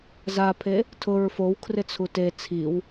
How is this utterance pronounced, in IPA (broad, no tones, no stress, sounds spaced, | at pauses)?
z a pʰ e | tʰ ʊ ɹ f o w kʰ r ɪ t͡sʰ u t e t͡sʰ i w